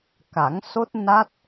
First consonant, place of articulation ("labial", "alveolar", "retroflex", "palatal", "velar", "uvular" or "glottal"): velar